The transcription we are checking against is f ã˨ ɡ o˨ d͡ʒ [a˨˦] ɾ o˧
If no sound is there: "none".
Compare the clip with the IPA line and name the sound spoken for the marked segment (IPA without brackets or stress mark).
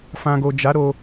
a˨˦